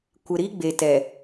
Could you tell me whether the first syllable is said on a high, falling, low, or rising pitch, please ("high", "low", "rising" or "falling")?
low